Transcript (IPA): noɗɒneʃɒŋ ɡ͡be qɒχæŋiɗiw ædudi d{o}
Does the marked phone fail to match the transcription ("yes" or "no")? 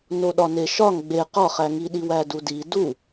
yes